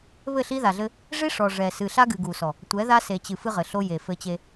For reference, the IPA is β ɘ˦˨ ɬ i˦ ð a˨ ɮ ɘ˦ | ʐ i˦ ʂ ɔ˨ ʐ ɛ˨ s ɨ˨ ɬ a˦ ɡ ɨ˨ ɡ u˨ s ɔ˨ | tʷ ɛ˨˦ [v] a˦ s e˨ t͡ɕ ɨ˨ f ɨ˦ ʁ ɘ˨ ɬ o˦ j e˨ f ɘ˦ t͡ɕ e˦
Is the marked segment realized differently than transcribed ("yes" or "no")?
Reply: yes